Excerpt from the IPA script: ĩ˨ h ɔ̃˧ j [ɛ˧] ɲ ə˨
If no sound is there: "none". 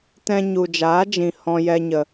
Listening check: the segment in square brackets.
ɛ˧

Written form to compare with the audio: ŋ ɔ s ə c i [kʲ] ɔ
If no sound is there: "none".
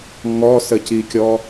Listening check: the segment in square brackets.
kʲ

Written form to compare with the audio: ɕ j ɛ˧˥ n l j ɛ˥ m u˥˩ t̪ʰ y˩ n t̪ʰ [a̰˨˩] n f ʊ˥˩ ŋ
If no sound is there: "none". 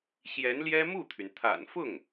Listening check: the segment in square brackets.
a̰˨˩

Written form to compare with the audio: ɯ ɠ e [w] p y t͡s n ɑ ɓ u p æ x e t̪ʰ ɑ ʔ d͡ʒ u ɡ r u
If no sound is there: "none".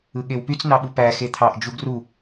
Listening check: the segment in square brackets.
w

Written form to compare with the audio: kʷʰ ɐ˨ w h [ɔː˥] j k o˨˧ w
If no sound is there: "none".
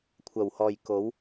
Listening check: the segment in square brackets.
ɔː˨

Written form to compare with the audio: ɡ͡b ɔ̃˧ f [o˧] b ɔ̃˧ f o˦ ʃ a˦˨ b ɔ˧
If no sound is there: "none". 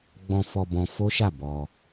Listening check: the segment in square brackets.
ɔ˧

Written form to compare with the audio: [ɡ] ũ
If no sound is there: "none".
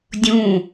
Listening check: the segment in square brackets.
dʲ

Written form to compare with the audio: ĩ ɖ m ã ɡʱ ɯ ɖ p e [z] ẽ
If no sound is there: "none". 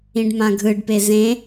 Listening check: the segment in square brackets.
z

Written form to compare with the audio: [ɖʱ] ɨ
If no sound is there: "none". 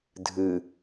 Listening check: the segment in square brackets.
dʱ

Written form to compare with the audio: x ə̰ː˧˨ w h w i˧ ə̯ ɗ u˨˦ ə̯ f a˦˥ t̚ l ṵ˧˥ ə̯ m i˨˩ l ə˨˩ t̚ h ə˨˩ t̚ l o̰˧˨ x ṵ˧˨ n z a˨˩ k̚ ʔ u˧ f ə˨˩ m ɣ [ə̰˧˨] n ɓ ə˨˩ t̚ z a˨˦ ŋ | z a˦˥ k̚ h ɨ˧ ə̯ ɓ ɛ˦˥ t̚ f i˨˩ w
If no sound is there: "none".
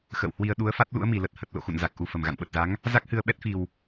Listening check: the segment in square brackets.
a̰˧˨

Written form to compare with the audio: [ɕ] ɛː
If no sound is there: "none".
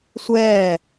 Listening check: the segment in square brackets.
sʷ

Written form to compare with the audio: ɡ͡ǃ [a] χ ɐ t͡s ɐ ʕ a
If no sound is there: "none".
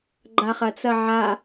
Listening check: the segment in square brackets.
a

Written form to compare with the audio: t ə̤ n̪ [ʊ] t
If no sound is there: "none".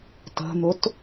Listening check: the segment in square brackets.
ʊ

